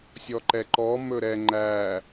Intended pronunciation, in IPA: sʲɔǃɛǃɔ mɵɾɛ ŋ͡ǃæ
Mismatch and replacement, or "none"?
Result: none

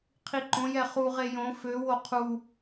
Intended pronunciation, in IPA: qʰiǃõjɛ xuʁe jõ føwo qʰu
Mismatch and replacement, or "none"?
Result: x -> χ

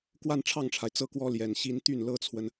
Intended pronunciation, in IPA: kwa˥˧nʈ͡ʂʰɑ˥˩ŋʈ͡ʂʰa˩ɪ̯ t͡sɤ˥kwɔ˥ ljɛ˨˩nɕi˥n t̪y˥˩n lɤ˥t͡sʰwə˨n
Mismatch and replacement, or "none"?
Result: none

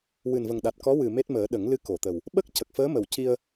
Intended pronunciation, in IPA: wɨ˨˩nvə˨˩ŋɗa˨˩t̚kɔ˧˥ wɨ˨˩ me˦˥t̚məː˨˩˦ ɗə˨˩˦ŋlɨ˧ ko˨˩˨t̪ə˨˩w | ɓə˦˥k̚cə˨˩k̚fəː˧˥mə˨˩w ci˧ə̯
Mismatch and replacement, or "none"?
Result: none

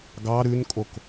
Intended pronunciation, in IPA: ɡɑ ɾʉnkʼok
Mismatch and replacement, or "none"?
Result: none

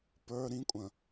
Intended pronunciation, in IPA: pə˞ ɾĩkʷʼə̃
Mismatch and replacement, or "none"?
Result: none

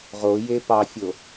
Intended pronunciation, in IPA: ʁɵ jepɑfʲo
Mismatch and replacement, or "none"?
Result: ɵ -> o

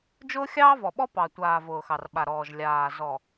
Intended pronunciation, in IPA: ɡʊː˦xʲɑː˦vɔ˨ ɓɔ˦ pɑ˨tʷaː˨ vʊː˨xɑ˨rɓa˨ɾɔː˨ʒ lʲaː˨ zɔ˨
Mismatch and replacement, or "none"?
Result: ɡ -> d͡ʒ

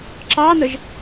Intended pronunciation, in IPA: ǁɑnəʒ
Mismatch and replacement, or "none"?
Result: none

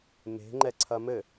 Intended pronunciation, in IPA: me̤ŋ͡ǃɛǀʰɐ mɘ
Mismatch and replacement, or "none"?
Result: none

